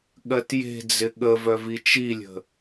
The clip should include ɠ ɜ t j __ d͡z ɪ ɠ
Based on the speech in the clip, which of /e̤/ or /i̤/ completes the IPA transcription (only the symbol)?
e̤